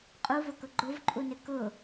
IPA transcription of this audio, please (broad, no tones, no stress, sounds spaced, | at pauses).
qʼ u v ʊ k ʊ ɡ͡ǃ ʊ v ǃʼ u n ɪ k ʊ